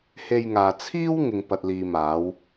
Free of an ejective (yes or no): yes